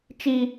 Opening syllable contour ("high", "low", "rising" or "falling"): high